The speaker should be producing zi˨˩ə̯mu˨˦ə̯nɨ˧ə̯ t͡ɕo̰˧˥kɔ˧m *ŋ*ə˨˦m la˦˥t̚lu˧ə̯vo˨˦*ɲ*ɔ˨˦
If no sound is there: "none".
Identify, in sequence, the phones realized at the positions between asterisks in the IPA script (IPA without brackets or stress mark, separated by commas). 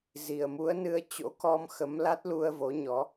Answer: x, ɲ